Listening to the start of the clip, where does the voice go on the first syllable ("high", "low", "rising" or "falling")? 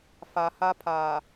low